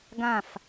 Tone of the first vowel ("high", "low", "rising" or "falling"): falling